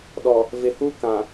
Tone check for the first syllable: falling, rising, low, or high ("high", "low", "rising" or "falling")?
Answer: low